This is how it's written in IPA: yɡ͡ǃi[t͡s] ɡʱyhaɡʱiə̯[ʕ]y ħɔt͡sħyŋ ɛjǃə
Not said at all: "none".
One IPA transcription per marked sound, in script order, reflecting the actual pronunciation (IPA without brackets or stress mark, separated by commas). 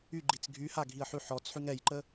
t͡s, ħ